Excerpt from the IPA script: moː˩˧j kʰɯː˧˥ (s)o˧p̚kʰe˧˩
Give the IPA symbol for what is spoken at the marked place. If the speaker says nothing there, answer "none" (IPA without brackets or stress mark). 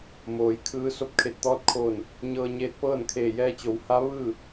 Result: s